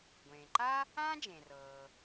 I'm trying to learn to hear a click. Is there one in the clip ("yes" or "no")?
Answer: yes